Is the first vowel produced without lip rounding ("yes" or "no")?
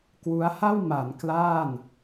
no